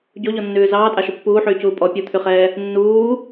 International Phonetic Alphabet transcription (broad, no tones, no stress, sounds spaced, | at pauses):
ɟ o ʎ ɔ nː ʉː z ɑː tʼ ɑ ʃ ɵ pː uː ħ yː c uː pʼ ɔ pʲ u t̪ʰ y χ ɛː | nː uː